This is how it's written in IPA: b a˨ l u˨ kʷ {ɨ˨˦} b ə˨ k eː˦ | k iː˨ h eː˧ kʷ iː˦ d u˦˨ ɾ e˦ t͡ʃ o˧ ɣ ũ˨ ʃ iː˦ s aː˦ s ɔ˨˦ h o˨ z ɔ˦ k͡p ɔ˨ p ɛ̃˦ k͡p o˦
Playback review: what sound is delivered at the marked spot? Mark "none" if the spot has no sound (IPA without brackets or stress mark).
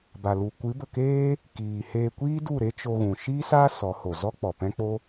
ɨ˨˦